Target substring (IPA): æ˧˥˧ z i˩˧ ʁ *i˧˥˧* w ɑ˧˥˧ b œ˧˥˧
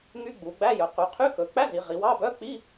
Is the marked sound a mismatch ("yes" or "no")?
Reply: yes